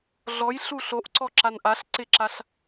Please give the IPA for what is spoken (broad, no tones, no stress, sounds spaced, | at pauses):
ɮ ɔ j ɬ u ɬ o ʔ ǀ ɔ ǁ a n ʔ a ɬ ǀ ɪ ǁ a ɬ